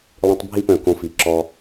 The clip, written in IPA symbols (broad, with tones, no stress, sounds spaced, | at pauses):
lˠ ĩ˧ tˤ bʱ i˥ p œ̃˧˩ k õ˧˩ f i˩˧ ǁ ɔ˧